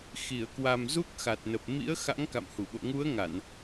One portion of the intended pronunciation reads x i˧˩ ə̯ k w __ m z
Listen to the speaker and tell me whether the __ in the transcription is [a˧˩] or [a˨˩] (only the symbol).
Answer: a˨˩